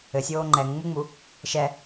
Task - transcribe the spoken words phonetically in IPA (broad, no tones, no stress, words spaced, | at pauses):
ɘsʲoː ŋ͡ǃɛŋŋ͡muŋ͡mu | ʃɛ